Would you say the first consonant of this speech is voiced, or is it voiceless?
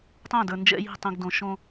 voiceless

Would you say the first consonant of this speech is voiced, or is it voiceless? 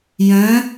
voiced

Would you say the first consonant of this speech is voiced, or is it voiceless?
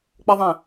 voiceless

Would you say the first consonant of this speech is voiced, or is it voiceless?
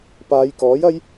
voiceless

